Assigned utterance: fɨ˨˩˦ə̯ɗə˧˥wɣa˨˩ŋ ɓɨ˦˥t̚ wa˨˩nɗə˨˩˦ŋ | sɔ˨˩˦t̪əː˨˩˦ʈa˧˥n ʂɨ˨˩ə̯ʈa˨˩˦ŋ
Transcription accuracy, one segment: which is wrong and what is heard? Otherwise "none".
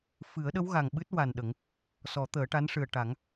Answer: none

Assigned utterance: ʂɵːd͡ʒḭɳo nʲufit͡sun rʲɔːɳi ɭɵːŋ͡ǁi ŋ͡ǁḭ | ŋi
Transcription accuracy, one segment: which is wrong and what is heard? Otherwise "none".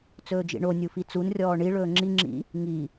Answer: ʂ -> t͡s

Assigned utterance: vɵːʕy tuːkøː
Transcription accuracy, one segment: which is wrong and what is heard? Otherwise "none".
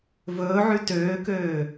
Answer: uː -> øː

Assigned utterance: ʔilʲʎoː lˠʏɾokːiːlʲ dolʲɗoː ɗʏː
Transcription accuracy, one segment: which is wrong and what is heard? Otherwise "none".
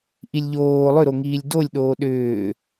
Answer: kː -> ŋ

